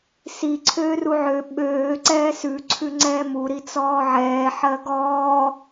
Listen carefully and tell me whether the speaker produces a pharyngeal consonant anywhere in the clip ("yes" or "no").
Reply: yes